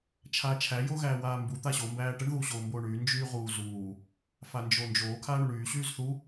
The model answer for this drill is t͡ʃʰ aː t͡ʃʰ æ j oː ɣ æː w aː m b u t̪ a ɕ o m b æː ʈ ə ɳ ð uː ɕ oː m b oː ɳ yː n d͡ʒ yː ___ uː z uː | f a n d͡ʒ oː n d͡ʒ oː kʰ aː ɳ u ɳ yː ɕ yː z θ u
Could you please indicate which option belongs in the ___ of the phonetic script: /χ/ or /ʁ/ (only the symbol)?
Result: ʁ